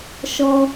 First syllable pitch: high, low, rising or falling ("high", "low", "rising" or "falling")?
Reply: high